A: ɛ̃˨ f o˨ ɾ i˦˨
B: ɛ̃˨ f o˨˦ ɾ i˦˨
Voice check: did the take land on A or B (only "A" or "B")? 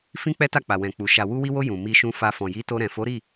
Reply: B